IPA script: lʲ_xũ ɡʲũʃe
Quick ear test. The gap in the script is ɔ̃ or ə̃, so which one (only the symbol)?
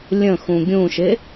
ə̃